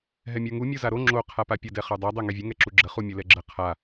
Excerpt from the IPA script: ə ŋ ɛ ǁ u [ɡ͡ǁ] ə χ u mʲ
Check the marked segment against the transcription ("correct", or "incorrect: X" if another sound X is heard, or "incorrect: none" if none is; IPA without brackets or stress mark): correct